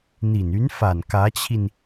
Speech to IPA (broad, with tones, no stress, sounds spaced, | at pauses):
n̪ i˨˩ n y˧˥ n f a˨˩ n k ä˧˥ t͡ɕʰ i˧ n